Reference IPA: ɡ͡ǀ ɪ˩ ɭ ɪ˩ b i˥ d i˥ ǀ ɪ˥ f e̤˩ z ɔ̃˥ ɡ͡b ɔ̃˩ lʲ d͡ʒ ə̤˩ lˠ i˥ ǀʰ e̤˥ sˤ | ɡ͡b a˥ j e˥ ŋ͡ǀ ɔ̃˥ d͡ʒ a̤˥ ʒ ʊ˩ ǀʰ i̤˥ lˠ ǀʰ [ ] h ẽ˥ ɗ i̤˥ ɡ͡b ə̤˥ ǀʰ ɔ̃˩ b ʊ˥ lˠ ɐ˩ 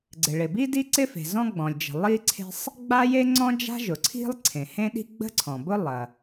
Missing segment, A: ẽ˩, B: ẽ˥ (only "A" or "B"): A